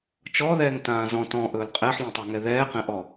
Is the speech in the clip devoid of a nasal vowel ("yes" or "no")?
no